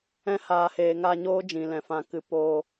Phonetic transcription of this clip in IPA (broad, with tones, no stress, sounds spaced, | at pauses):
ɛ̃˧ h aː˨ h eː˨ ŋ a˧ ɲ oː˦ d͡ʒ ĩ˨ l ɛ̃˨ f ã˨ k ɨ˨˦ p oː˧